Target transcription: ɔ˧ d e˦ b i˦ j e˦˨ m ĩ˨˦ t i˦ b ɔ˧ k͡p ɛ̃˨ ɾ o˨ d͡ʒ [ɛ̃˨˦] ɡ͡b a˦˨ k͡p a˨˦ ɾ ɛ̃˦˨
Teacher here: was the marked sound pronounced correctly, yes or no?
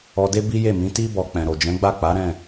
yes